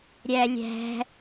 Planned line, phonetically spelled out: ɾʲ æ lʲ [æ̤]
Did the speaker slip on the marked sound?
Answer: no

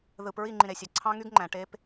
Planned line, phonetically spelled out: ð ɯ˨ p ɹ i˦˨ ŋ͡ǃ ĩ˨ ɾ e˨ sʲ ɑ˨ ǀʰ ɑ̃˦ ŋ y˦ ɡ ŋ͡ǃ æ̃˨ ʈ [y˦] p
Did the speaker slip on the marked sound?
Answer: yes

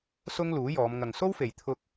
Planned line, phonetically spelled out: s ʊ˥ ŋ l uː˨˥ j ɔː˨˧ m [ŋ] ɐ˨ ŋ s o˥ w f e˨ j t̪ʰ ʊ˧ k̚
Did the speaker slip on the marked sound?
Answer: no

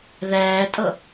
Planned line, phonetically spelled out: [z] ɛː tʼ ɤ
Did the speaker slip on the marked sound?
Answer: yes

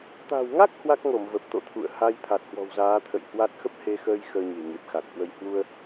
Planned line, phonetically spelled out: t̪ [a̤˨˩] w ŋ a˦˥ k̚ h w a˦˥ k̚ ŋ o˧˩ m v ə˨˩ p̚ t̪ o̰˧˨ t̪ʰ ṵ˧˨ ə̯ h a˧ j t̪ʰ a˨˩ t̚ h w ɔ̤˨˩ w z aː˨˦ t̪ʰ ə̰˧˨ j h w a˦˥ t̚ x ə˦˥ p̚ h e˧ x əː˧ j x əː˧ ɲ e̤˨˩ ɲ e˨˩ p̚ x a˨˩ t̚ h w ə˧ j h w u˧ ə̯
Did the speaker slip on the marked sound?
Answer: no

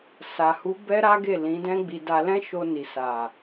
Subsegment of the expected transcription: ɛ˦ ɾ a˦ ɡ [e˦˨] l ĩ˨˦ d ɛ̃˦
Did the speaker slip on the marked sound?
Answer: no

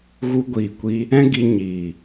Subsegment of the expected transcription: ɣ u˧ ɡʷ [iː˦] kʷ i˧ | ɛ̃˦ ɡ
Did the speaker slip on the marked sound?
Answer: yes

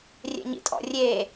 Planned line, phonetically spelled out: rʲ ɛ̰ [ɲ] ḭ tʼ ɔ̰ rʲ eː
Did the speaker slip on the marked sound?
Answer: no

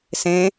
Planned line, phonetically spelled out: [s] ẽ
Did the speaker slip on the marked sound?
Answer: no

